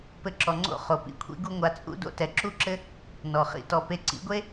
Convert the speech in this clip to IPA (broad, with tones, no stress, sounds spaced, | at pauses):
p ɘ˧ ǁ ɔ˨ ŋ͡ǀ o̰˦˨ χ o˨ p ḭ˨ kʷʰ ḭ˦ ɡ u˦ ŋʷ a˧ t͡sʼ ṵ˦ d o̰˦ t ɛ˨ ǁ u˦ ǁ ɘ˦ | n ɔ˨ χ ḭ˦ t ɔ˧ p e˧ ǀ ḭ˨˦ ɡʷ e˦